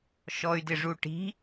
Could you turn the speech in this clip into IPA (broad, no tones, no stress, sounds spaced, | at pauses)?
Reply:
ʃ ɔ y̯ d ɪ ʐ u ʈ i̤